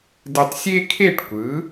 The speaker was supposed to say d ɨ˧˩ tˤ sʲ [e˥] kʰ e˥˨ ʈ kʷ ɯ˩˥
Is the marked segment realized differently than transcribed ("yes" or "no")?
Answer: no